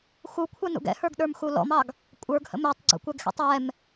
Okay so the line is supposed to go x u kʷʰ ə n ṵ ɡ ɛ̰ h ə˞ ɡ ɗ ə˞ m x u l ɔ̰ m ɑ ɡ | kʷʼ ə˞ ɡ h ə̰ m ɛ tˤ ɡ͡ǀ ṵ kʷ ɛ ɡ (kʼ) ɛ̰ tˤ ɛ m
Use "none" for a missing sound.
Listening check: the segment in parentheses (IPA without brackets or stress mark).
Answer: x